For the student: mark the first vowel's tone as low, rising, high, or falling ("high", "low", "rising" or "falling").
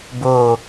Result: low